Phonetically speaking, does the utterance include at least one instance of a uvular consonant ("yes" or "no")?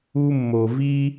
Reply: no